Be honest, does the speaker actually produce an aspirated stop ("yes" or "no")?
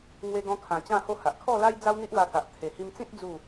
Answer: yes